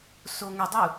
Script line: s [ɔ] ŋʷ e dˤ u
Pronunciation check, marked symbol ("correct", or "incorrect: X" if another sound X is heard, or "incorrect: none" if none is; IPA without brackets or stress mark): incorrect: o